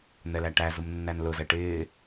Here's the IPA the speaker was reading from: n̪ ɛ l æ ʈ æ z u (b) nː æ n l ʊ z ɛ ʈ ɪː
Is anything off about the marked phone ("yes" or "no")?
yes